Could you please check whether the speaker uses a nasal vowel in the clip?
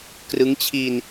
no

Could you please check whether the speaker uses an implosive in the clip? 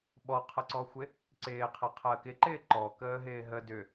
yes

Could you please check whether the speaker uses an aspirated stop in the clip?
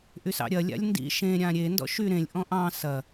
no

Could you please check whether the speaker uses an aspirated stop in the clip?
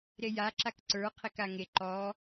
yes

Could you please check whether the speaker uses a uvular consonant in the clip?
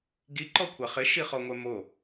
yes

